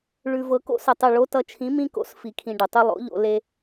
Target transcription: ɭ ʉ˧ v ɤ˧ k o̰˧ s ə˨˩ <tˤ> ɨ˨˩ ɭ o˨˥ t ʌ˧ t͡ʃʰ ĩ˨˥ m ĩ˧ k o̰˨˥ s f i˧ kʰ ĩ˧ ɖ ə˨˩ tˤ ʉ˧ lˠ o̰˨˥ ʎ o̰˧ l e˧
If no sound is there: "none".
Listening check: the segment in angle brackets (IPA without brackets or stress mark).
tˤ